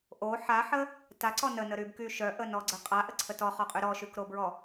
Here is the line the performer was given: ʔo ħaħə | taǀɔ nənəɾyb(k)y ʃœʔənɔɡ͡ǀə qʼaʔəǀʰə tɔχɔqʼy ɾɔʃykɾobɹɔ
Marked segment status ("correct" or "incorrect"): correct